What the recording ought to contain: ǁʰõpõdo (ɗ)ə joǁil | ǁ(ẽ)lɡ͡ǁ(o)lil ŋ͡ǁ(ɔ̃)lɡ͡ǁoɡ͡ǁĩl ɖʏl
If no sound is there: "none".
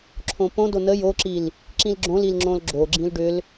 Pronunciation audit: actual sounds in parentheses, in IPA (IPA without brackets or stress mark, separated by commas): n, ĩ, õ, õ